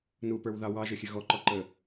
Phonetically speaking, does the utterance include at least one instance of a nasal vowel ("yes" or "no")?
no